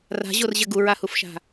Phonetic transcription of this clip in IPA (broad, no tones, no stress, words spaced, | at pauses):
ra̤ʑorʑɘ ɡuɹahufʃa̤